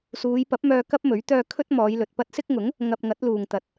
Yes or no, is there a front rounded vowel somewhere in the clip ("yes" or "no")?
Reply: yes